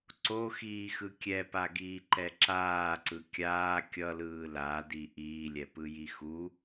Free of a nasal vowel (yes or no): yes